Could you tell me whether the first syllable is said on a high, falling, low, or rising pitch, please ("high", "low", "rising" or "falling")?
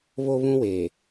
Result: high